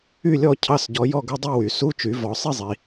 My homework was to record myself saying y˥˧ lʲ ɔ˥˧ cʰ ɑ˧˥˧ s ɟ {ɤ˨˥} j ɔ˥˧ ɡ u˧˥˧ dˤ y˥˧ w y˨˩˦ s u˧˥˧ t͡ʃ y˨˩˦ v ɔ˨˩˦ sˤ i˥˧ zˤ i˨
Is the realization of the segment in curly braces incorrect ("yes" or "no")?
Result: yes